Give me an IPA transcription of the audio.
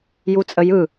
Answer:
j u t͡sʼ ə j ɯ

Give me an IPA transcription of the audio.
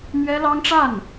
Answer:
m ɥ ɛ˥ l ɑ˥ ŋ ʈ͡ʂ a˥˩ n

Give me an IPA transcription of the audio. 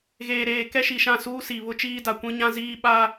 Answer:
ɣ eː˨ ɾ eː˨ k ɛ˦ ʃ i˨ ʃ ã˦˨ s uː˦ s i˨ β ʊ˦ t͡ʃ iː˦ d a˨ kʷ ĩ˦ ɲ ã˦ z iː˦ ɓ a˦

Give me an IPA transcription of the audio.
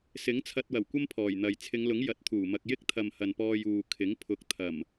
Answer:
s ɪ˨˥ ŋ t͡sʰ ɐ˧ t̚ w ɐ˨˩ w kʷ ɐ˥ m pʰ ɔː˨˩ j n̪ ɐ˨ j t͡sʰ ɪ˨˧ ŋ l ʊ˨˥ ŋ j ɐ˨˥ t̚ t̪ʰ uː˨˩ m ɐ˧ k̚ j ɪ˥ k̚ t̪ʰ ɐ˨ m h ɐ˨ n p ɔː˧ j uː˨ kʰ ɪ˨˥ ŋ pʰ ʊ˨˥ k̚ t̪ʰ ɐ˨˩ m

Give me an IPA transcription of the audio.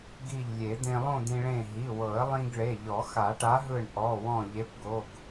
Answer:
ɡ i˧˩ ʎ lʲ e˨˩˦ d̪ ẽ˧ lˠ õ˥˧ d̪ ĩ˧ ɭ ẽ˧˩ ɦ i˩˧˩ w ɤ˨˩˦ ə̯ lˠ ĩ˧ ɡ ɭ e˩˧˩ ʎ ɔ˨˩˦ x a˨˩˦ ʈ a˨˥ ɦ ɯ˧˩ ɳ ʔ ɔ˩˧˩ w ɔ̃˧˩ ʎ e˨˥ p ɡ o˩˧˩ ɡ

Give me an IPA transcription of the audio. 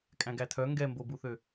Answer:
kʼ æ̃ ɡ æ tʰ œ ŋ ɡ ɛ m b o b u θ ø

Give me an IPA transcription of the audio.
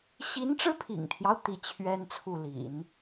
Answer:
ɕ i˧˥ n ʈ͡ʂ ɻ̩˥ pʰ ḭ˨˩ ŋ t̪ʰ j ɑ˦ ʊ̯ t̪ i˥˩ t͡ɕʰ ɥ ɛ˥ n t͡sʰ u˥˩ l ḭ˨˩˦ n

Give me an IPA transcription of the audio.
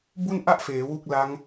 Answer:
b u˥˩ n ʔ a˥˩ ʔ f eː˩˦ w u˥˩ k̚ l a˦˥ ŋ

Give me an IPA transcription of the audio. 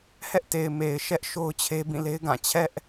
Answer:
h ɛ˦ ʔ t e˨ ɪ̯ m e˨ ɪ̯ ʃ ɛ˦ ʔ ʃ o˦ ʊ̯ t͡ɕʰ e˦ b ĩ˦˨ l e˦ ɪ̯ ɡ ã˦˨ t͡ɕʰ ɛ˦ ʔ

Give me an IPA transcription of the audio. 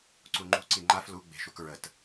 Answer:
ǀ u ŋ͡ǃ ṳ ǀ i ŋ͡ǃ a f l u ɡ͡b e̤ ʃ u k ɹ ə t

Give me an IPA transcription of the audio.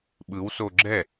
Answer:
ɓ ɯ w s o ɡ͡ǁ ɛ

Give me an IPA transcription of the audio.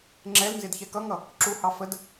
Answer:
ŋ͡ǁ ɛ l n z ɪ d ç ɛ k ʌ ŋ ʌ | ǁ u h ɑ f ə d

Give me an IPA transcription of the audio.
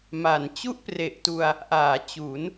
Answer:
m a˩˦ n t͡ɕ u˥˩ ʔ p r e˨˩ ʔ t u˧ a̯ | ʔ aː˩˦ t͡ɕ u˩˦ n

